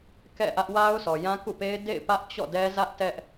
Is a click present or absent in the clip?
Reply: absent